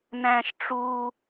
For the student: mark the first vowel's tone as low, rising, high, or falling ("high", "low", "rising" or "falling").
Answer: high